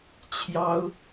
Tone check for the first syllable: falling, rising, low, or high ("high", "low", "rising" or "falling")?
high